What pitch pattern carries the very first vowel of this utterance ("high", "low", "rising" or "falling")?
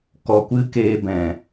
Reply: low